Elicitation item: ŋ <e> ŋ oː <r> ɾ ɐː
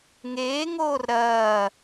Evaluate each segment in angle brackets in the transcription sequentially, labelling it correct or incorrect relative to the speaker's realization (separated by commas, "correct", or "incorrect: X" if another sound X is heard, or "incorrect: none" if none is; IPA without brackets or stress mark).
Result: incorrect: eː, correct